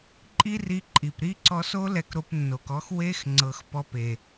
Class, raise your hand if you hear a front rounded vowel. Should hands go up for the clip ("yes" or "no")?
no